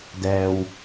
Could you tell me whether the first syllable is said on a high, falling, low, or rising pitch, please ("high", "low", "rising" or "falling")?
low